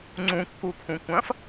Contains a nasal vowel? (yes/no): yes